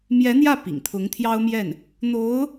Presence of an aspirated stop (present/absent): present